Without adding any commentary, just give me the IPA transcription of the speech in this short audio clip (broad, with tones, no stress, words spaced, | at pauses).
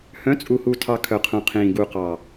hœ̃˨˦t͡sʼu˨hu˨tʰɑ˨ kʰœ˨qʰũ˨qʰĩː˨ ɡu˨qɑ˨